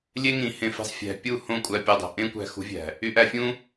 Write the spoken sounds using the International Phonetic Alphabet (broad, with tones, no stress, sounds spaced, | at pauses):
lʲ e˦ ŋ ĩ˨ h ẽ˧ f i̤˧ sˤ fʲ æ̤˨ pʲ u˦˨ h õ˦˨ kʷʼ æ˧ pʲ u˨ dˤ o̤˨ ʔ ẽ˦ kʷ æ̤˧ x ṳ˨˦ vʲ æ̤˨ | y˧ ʔ æ˧ fʲ ũ˦